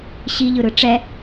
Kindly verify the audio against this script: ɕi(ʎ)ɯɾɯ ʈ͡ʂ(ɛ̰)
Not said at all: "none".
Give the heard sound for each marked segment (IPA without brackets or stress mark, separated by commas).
ʎ, ɛ